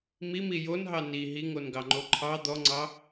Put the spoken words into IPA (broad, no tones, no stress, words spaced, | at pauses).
mimi jonɦɑ ni ɦiŋonɡɑŋ͡ǃo ǃʰɑ d̪ɔŋ͡ǀɑ